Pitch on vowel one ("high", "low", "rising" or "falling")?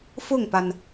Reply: falling